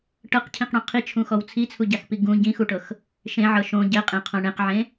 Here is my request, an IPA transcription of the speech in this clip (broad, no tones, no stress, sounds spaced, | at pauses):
ʈ ɤ q cʰ ĩ q ɽ õ qʰ i t͡ʃʰ ũ x ɔ w t͡sʰ i t͡sʰ u ɟ a x p i ɡ ũ ɟ ĩ x u ʈ ɤ x | ʃ ẽ ʕ ɤ ʃ õ ɟ ɛ qʼ ẽ qʰ õ ɳ ẽ q ʕ ẽ